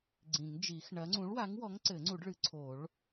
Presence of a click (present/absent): present